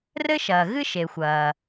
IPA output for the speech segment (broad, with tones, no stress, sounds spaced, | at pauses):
r ɘ˥ ʃ ɐː˩ ɣ ɨ˥ ʃ e˩ xʷ ɐː˩